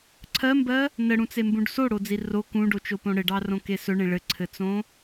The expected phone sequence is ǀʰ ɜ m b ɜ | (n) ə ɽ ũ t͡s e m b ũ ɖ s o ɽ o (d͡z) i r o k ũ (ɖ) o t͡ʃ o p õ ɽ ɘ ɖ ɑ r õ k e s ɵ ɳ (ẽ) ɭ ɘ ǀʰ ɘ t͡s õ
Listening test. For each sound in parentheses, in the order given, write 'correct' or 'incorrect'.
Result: correct, correct, correct, correct

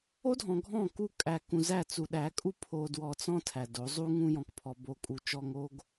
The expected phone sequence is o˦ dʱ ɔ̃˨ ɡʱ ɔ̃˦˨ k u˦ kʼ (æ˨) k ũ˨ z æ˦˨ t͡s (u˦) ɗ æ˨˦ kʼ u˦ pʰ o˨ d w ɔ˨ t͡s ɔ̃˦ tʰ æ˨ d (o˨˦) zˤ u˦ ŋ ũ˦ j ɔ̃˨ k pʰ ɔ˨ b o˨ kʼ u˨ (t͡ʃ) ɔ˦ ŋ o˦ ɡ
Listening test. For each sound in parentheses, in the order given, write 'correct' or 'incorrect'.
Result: correct, incorrect, correct, correct

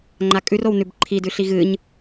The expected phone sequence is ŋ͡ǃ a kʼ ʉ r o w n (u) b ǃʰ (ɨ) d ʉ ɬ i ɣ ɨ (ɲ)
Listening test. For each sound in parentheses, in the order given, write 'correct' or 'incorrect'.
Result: incorrect, incorrect, correct

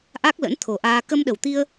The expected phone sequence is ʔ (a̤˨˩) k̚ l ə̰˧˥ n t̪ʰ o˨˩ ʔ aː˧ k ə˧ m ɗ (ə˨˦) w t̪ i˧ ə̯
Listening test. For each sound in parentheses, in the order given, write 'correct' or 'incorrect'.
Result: incorrect, incorrect

